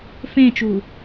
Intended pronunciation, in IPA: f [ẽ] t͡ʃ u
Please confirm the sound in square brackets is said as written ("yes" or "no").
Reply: yes